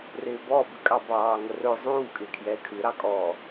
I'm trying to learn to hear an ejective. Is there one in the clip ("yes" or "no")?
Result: yes